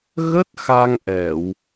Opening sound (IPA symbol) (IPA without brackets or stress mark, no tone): ɣ